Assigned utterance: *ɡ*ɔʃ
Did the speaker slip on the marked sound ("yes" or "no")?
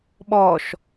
yes